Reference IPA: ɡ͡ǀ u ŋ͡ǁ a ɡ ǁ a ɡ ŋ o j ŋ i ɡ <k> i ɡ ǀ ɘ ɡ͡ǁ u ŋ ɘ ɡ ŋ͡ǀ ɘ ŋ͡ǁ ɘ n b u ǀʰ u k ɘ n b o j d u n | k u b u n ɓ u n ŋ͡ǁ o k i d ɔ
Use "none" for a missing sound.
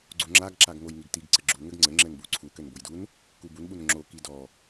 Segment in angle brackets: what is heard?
t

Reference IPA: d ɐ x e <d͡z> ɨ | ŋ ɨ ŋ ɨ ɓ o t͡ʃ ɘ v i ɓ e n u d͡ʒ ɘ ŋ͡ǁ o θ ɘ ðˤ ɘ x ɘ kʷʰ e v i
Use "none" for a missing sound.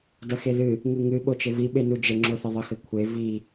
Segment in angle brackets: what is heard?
ð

